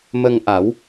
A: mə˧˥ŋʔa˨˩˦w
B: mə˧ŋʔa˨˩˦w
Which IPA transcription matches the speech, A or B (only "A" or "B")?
B